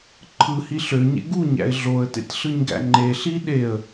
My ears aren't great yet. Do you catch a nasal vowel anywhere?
no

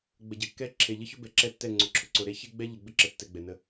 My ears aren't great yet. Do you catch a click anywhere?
yes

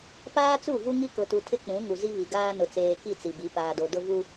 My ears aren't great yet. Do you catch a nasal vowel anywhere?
yes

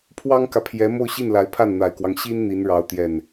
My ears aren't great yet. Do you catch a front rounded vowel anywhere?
no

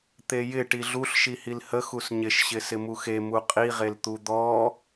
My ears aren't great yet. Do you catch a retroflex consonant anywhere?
yes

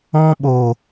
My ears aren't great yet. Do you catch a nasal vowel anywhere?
yes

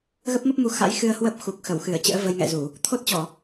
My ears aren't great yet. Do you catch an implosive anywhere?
no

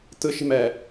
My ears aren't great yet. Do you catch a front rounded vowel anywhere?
no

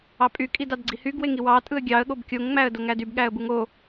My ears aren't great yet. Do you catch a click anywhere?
yes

